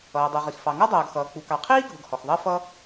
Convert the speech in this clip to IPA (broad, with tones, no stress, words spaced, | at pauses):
ʌː˩dˤʊ˩ʁi˩x fɑ˩ŋɔ˥dˤʌː˩ɡxʌː˩ k͡pu˩kɑ˩qʰiː˥ɡʱʊ˩ɡ hɔ˩xðˤɜ˥fʌ˥